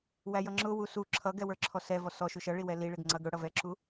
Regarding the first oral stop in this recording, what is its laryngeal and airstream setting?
click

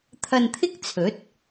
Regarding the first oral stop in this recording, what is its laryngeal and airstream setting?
aspirated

